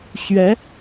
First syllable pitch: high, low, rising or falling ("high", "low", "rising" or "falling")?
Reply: rising